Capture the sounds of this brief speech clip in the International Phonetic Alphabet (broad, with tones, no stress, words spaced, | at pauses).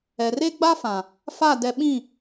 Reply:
ɛ˨re˦ ɡ͡ba˦fã˨ | fa˦˨ dɛ˦ ɓĩ˦˨